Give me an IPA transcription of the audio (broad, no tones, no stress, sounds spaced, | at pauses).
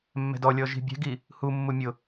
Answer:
mː ɛ̤ d ɔ lʲ ɔ ʒ i̤ bʲ ɛ̤ ɡ i | h u mː u mʲ ʊ